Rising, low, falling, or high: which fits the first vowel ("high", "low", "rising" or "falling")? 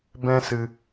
high